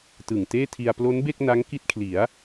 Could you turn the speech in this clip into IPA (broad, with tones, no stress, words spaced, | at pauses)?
tɯ˨˩ŋ teː˥˩tʰi˧a̯ plo˦˥nbe˥˩k̚ na˦˥ŋki˦˥t̚kʰli˩˦a̯